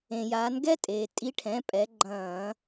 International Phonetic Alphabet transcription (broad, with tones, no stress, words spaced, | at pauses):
ẽ˩jaː˩˧nɡɛ˦˥tʼeː˩ tʼi˨˥ʈʰɛ̃˩˧˩pʼɛ˩˧ ɡ͡ǃɐ̃ː˧˩˧